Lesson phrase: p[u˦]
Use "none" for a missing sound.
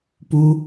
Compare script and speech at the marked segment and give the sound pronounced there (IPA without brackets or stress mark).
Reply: u˦